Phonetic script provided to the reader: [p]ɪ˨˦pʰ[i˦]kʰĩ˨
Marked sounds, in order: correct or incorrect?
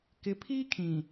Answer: incorrect: k, incorrect: iː˦

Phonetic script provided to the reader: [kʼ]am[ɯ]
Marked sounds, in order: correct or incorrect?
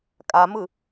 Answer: correct, correct

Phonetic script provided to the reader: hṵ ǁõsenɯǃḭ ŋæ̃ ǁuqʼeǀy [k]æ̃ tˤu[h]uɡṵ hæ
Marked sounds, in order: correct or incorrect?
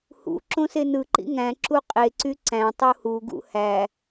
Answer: incorrect: ǀ, correct

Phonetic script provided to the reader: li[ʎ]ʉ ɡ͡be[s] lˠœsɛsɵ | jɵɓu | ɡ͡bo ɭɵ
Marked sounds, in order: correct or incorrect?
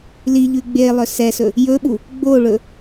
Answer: correct, incorrect: none

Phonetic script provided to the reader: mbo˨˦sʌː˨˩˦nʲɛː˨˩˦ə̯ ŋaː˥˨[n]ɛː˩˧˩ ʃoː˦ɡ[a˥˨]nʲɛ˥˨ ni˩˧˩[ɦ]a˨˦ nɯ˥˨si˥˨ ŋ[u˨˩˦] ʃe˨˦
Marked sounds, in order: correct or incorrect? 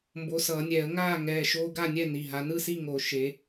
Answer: incorrect: ŋ, correct, correct, incorrect: o˨˩˦

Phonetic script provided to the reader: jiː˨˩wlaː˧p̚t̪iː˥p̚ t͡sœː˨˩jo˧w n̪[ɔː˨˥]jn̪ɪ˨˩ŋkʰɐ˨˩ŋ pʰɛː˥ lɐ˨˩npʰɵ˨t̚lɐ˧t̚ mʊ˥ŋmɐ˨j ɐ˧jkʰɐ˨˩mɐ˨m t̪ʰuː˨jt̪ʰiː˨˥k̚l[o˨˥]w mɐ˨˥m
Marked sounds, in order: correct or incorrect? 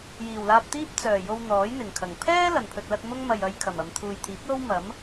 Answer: correct, incorrect: o˥

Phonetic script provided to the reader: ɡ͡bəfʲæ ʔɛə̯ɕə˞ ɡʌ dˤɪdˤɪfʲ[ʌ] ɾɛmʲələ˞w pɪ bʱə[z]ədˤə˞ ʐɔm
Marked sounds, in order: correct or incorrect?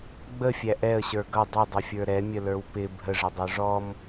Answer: incorrect: ə˞, incorrect: ʐ

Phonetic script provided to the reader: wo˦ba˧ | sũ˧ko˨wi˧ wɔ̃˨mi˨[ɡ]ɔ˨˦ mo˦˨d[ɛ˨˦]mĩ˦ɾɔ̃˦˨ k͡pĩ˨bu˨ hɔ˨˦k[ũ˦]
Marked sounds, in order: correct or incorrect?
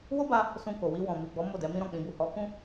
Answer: incorrect: ɡ͡b, correct, correct

